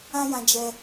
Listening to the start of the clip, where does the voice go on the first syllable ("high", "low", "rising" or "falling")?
high